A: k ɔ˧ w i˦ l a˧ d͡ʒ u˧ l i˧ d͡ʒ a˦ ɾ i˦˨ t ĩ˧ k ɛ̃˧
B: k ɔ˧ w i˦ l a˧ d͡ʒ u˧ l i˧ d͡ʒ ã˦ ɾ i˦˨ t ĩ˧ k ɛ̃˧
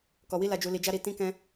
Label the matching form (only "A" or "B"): A